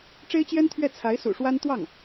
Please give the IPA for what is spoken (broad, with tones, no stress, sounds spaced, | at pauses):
ʈ͡ʂ e˥ ɪ̯ t͡ɕ j ɛ˥ n t̪ʰ ɥ ɛ˥˩ t͡sʰ a˧˥ ɪ̯ s ṵ˨˩ ʂ w a˥ n t̪ w ɑ˥˩ ŋ